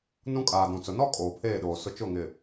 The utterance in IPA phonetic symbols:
n ũ˦ kʼ aː˨ d ũ˨ t͡s ʊ˨ n ɔ˦ kʼ oː˨ pʰ eː˦˨ ɗ oː˨ s ʊ˦ t͡ʃ ʊ˦˨ ŋ ɪ˨

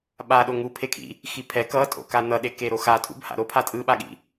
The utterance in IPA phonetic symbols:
ɓ a ɗ o ŋ u pʰ e kʰ ḭ | x i pʰ ɛ k ʌ tʼ o̰ k a n ʌ ɗ e k e ɾ o x a tʼ ṵ b h a̰ ɾ o pʰ a tʼ ɯ ɓ a ɠ ḭ

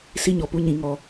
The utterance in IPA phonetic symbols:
s i˦ ɲ ɔ˨ p u˧ ɲ ĩ˨ ŋ ɔ˨

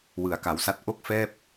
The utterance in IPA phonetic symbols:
w ɯ˩˦ a̯ k a˩˦ w s a˥˩ t̚ ʔ o˦˥ k̚ f ɛː˥˩ p̚

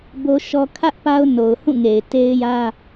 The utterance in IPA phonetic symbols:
b o˦ ʃ ɔ˦ kʰ ä˦ ʔ p a˦ ʊ̯ n o˨ ʊ̯ h ũ˦˨ ŋ e˨ ɪ̯ t e˦ ɪ̯ j ä˦

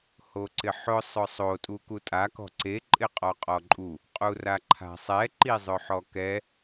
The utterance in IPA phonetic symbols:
h o ǀ ɪ ħ ʊ sˤ ʊ sˤ o tʼ u k u tʼ a k ɔ̤ ǀ e ǃʼ ɪ qʼ ɔ qʼ ɔ ǃʼ u | qʼ u r a ǃʰ a̤ sˤ ɛ ǃ i zˤ ʊ ħ ɔ k ɛ

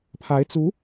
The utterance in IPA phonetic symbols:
pʰ a˧˥ ɪ̯ t͡s u˧˥

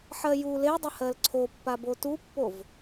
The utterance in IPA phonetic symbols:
ħ ɜ j u l e dˤ ɪ h ɜ l ǀʰ o pː a b o t u pː o v

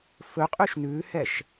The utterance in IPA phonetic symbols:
f ɵ qʼ y ʃ n ʉ h ɛ ʃ

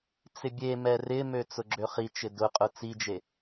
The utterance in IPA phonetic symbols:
t͡s ɪ bʲ e m ɛ r ɪ m ø t͡s ʊ ɡ͡ǁ ø χ i t͡ʃ ɪ d ʊ qʼ ʊ t͡s i d͡ʒ e

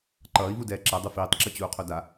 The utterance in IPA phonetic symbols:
ǃ ʌː i̯ v u d ɛː ǁ ɛ dˤ u f iː tˤ ǁ i t͡ɕ uː qʰ o d a

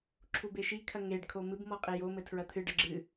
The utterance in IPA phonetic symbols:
ǁʰ u b e ʃ i kʰ ɐ ŋ e ɖ kʰ o m ɨ b m ɔ qʼ e j o m ɘ tʰ ɹ ɐ t̪ʰ ɨ ɖ ɐ ɡ͡ǁ ɨ

